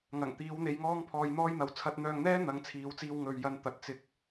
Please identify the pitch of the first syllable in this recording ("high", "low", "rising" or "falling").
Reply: low